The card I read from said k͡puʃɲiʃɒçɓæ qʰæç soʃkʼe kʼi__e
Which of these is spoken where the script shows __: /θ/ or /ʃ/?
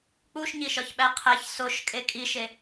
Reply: ʃ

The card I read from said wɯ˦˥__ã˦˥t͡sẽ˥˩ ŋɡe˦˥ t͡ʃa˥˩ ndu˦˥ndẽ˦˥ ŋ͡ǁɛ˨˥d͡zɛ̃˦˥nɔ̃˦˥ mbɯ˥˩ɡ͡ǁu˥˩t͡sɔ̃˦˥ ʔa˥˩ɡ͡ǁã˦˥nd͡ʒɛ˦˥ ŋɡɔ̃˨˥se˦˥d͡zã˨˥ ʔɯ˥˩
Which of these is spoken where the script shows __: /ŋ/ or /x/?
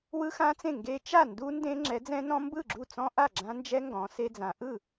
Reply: x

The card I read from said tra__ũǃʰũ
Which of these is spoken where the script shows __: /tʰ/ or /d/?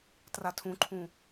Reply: tʰ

